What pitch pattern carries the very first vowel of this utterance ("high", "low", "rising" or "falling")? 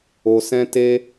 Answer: low